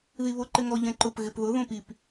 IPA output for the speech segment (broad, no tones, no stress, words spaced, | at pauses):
ðiβoǃɪŋɔ ʎɛ̃ǃʊp ɣɪpðʊ ðõpip